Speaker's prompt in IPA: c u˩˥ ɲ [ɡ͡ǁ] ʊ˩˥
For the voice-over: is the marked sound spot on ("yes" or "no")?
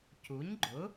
no